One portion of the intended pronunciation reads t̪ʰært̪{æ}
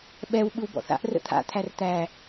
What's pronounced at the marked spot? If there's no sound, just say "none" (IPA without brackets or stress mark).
æ